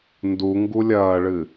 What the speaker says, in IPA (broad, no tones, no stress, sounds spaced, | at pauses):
n d u ŋ ɡ u lʲ ɐː ɭ ɨ